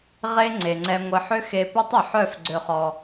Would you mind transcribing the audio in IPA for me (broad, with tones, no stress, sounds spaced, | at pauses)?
ʁ e˦ ŋ͡ǀ e˨ ŋ͡ǀ ɛ˧ ŋʷ ə˧ ħ ʏ˦ x e˧ p ɛ˦ tˤ ʏ˨ ħ œ˦˨ f ɡ͡ǀ ø˧ χ ɔ˧